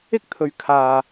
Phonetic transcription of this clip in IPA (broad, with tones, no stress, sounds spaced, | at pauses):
ɪ˥ k̚ t̪ʰ ɵ˨ ɥ kʰ aː˨